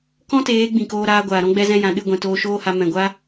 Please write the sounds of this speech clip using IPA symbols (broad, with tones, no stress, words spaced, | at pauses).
kɔ̃˦teː˨˦ ɡ͡bĩ˨koː˧ ɾaː˧ɡʷaː˨ɾɔ̃˦ ɡ͡bɛ˧zɛ̃˧jã˨ ɗɨ˦˨ɡʷɛ̃˨ toː˧ʃoː˦ha˧ mɛ̃˨ɡʷa˦